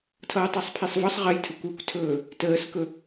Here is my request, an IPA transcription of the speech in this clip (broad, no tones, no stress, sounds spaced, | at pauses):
tʰ ʌː tˤ ɛ sˤ pʰ i sˤ v ʌ sˤ ʁ ə j tʰ ə kʷ ø kʷ tʰ ɵː | t əː s k ɵ